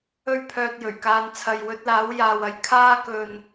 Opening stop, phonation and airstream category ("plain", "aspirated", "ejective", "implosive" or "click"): aspirated